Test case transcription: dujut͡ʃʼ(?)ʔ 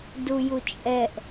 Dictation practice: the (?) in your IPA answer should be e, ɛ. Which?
ɛ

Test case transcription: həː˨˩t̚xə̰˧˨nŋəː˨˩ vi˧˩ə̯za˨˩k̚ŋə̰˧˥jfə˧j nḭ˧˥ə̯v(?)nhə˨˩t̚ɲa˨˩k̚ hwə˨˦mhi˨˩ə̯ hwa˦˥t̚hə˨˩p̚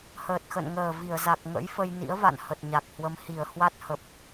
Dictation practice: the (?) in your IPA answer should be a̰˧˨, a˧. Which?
a̰˧˨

